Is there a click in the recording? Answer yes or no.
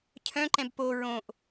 yes